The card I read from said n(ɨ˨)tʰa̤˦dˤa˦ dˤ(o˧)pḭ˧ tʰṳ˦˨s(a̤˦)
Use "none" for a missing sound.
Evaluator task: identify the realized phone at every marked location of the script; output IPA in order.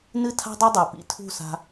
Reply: ɨ˦, o˨, a̤˧

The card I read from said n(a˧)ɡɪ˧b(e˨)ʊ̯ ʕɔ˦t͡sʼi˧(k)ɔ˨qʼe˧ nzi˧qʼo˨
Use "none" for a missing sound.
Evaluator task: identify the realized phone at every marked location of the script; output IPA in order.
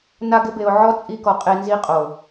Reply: a˧, e˨, k

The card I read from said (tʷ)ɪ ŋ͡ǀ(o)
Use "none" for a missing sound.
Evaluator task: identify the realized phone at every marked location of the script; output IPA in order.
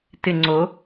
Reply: t, o

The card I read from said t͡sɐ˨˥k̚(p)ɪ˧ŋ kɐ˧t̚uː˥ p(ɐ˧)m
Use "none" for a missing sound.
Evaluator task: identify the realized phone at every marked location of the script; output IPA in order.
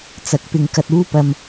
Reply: p, ɐ˧

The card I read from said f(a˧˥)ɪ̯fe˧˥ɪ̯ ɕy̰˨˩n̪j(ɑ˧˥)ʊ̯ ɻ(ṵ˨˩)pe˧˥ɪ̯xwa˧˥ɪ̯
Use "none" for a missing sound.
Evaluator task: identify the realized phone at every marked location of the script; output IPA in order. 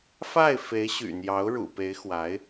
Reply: a˥˩, ɑ˧˥, ṵ˨˩

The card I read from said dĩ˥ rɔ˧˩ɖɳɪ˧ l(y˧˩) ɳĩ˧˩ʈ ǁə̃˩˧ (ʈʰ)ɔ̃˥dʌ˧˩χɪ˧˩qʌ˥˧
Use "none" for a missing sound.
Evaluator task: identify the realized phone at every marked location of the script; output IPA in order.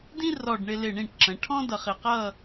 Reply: ɪ˧˩, ʈʰ

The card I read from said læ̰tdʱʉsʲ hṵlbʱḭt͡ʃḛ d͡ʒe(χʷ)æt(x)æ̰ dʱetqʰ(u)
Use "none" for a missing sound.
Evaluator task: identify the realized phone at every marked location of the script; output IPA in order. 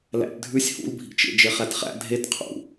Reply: χ, χ, ṵ

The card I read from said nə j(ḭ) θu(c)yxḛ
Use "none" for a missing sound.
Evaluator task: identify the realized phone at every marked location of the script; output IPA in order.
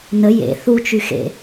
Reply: ḛ, t͡ʃ

